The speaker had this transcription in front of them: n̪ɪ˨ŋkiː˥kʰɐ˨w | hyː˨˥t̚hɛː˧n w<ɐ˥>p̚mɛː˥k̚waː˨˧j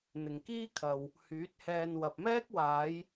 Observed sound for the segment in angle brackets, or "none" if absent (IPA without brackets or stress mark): ɐ˨